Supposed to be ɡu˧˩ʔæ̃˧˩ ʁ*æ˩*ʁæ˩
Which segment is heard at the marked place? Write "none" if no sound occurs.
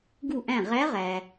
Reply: æ˧˥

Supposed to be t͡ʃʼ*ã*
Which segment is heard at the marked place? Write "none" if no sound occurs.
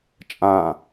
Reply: ã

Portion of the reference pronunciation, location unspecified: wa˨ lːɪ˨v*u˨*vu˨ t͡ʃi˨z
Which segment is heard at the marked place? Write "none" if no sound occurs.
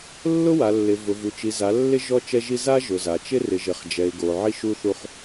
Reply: ʊ˨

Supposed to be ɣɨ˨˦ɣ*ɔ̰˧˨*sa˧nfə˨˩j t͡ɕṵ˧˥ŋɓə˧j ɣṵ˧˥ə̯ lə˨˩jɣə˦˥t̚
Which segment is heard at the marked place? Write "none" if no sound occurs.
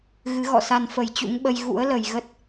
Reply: ɔ̰˧˨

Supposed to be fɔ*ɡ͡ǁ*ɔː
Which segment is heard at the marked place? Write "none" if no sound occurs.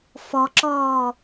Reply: ǁ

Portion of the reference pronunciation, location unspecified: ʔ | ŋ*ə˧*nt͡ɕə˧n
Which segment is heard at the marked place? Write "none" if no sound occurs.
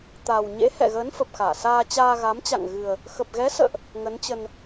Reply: ə˨˦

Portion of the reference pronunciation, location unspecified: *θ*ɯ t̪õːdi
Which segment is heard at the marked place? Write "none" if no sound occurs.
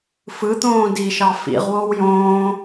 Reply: f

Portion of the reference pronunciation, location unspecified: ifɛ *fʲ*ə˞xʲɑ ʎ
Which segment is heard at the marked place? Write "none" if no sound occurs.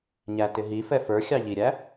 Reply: f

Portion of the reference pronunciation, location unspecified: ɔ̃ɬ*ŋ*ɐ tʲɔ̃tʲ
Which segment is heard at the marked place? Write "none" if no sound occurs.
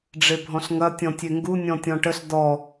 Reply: ŋ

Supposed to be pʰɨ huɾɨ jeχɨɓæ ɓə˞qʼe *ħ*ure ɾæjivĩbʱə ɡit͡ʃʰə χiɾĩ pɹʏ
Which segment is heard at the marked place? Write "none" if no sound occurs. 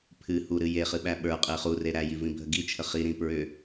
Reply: χ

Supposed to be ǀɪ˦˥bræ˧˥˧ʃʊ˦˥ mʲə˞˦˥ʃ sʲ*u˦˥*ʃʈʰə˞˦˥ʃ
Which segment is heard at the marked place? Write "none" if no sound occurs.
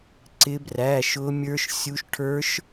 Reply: u˦˥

